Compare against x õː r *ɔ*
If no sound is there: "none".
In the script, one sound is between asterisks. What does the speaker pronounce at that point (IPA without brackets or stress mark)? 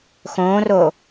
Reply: o